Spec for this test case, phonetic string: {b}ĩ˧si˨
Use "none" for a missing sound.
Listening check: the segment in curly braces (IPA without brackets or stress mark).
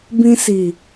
b